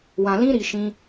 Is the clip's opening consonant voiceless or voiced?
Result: voiced